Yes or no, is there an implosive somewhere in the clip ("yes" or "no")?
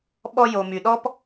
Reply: yes